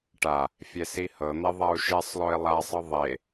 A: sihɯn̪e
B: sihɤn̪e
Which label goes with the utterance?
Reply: B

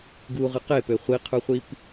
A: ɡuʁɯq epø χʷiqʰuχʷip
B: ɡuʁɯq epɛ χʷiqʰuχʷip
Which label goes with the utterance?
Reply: A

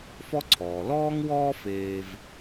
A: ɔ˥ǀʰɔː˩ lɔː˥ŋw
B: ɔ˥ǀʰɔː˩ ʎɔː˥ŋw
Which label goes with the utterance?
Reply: A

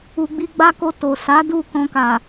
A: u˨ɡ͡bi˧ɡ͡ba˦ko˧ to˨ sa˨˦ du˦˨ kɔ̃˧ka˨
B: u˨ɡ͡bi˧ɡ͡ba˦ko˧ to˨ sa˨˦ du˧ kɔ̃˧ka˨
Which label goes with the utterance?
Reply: A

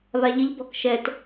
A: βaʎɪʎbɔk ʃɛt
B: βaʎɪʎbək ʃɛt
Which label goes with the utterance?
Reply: A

